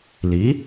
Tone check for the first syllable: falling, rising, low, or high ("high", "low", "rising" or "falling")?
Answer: rising